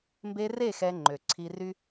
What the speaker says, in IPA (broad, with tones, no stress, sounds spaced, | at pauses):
m b e˧ r e˦˨ x ɛ˧ ŋ͡ǃ ø˨ ǀʰ i˧ r y˦